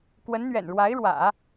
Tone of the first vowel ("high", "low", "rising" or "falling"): rising